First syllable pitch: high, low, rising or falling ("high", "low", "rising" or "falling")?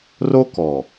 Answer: high